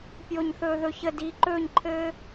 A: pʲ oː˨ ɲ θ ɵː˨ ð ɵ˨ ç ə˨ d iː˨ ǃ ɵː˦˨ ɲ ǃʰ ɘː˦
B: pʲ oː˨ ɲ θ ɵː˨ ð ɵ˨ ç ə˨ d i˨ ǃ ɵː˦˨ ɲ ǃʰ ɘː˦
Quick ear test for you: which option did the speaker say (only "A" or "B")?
A